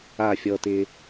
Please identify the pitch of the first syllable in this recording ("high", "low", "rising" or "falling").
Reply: falling